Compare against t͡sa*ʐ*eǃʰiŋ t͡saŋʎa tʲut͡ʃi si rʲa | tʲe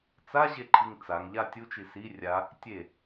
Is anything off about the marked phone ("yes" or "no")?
yes